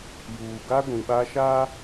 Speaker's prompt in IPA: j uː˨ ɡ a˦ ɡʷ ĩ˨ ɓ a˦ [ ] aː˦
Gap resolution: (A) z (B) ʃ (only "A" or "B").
B